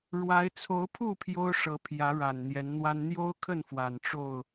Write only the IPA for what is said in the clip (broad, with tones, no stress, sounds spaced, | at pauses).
ɻ w a˨˦ ɪ̯ t͡sʰ o˨˦ ʊ̯ pʰ u˥˨ pʰ j o˦ ʊ̯ ʂ ɤ˨˦ pʰ j ä˨˦ ɻ a˨˩ n n̪ j ɛ˨˦ n n̪ w a˦ n n̪ j o˦ ʊ̯ kʰ ə˥˨ n f w a˨˩ n ʈ͡ʂ o˥˨ ʊ̯